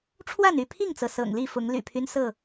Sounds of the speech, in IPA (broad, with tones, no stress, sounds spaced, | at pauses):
ʈ͡ʂʰ w a˥˨ n y˥˨ pʰ i˥˨ ŋ t͡s ɤ˩ s ɤ̰˨˩ ŋ l i˥˨ f ʊ˨˦ ŋ l y̰˨˩ pʰ y˦ n s ɤ˥˨